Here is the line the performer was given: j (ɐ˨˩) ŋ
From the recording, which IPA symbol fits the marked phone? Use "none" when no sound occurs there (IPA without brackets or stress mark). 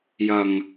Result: ɐ˨˩